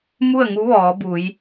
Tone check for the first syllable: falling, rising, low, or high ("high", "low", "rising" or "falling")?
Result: falling